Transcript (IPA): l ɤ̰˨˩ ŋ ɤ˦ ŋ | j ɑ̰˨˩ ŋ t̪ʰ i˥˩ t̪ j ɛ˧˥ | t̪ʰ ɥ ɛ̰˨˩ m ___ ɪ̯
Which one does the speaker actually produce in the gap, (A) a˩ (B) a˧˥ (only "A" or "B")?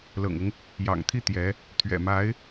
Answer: B